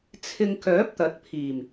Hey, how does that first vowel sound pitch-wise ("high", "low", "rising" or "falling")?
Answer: low